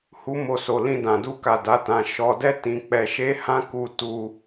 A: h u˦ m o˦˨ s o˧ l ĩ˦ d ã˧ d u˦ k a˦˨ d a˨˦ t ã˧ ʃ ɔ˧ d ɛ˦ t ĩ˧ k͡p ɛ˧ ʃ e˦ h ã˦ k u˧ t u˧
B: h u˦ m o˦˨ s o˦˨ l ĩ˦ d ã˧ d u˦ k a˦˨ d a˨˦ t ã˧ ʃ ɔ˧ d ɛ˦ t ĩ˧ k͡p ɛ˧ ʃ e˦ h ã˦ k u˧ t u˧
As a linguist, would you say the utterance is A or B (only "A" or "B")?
A